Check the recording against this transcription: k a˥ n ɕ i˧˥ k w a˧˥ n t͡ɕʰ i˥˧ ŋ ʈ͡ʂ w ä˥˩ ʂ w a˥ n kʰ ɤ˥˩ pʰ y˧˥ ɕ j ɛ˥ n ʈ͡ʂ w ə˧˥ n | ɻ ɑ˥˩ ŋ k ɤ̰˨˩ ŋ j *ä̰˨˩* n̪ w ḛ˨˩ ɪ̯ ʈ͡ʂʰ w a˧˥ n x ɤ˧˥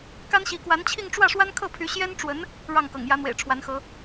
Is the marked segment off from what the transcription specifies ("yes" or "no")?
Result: yes